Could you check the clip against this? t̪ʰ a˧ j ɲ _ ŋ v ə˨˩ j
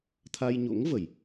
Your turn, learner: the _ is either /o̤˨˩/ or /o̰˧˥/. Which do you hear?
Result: o̰˧˥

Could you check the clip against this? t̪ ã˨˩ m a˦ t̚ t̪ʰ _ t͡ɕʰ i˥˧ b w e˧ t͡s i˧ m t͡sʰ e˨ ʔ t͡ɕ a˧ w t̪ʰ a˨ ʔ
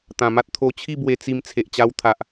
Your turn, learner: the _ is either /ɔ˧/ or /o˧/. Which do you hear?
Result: o˧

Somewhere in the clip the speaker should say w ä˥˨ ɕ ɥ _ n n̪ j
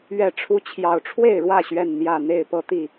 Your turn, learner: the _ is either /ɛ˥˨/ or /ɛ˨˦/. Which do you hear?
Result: ɛ˥˨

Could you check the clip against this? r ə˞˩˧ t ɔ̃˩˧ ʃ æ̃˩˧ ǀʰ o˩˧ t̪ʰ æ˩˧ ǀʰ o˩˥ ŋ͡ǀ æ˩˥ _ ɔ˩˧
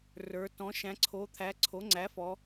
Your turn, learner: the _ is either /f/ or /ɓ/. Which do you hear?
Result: f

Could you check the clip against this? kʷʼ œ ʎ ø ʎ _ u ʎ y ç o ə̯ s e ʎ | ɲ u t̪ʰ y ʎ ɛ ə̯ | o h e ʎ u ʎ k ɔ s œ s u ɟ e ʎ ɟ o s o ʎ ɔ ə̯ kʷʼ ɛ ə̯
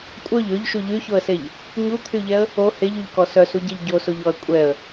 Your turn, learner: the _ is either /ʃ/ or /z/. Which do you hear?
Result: ʃ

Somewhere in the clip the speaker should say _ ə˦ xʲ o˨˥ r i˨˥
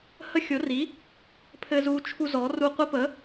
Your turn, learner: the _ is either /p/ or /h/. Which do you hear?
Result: h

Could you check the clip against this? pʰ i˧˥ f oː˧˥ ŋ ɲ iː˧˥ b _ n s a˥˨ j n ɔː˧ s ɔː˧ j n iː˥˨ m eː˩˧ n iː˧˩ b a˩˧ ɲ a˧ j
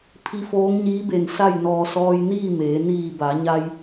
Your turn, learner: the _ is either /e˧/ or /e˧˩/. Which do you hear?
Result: e˧˩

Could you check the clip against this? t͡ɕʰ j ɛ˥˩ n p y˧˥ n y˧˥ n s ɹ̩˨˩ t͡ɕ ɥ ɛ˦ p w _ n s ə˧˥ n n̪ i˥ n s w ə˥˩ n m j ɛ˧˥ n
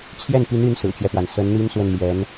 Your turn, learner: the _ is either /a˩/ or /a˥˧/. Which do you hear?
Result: a˩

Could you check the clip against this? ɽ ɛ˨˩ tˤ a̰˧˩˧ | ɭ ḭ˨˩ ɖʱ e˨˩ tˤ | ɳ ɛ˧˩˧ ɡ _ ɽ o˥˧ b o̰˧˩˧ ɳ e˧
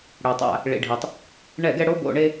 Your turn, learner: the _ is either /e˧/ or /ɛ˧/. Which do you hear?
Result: ɛ˧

